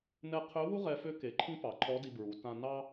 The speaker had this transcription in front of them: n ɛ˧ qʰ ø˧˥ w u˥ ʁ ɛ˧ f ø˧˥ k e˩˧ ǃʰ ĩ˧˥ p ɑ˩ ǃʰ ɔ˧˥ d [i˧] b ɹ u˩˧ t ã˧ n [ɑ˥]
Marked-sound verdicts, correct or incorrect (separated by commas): correct, correct